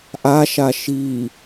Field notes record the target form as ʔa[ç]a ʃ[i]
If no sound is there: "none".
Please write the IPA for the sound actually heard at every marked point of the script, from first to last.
ʃ, i

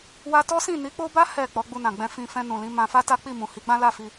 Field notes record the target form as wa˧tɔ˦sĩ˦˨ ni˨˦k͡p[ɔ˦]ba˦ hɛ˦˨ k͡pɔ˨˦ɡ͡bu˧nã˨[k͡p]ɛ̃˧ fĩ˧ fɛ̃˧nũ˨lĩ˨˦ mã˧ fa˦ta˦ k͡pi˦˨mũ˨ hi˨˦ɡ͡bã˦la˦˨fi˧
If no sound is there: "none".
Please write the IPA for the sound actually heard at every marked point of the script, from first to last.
o˦, ɡ͡b

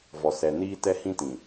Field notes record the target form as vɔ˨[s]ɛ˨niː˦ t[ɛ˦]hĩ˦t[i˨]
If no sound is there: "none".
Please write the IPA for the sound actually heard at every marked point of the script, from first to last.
s, ɛ˦, ĩ˨

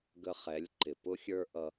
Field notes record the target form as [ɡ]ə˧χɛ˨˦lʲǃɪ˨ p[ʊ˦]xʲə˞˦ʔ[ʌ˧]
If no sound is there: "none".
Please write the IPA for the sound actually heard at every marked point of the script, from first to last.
ɡ, ʊ˦, ʌ˧

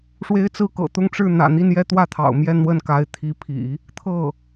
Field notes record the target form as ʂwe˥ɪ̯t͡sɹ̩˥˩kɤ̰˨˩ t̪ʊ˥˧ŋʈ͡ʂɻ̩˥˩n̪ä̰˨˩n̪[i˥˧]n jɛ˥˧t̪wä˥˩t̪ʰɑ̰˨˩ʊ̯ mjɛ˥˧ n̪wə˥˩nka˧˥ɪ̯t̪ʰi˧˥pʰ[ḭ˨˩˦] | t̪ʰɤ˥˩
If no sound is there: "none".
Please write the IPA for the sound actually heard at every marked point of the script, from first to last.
i˥˧, ḭ˨˩˦

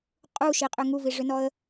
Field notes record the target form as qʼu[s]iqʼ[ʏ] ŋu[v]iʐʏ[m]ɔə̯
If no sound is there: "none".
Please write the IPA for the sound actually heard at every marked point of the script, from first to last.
ʃ, ʏ, v, n

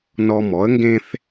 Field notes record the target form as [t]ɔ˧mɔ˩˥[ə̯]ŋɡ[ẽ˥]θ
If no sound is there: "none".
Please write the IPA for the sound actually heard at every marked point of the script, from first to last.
n, ə̯, ẽ˥

